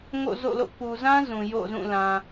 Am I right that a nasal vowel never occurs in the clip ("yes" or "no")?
no